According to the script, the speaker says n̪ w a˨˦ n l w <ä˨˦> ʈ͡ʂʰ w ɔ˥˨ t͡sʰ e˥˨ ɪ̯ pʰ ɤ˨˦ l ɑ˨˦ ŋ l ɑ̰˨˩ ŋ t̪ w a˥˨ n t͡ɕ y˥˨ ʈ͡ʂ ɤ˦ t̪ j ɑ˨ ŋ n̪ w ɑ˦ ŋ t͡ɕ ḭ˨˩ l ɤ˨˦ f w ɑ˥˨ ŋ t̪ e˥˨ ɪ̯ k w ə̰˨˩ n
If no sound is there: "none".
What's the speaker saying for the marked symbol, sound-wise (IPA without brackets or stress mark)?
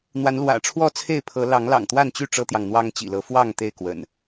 ä̰˨˩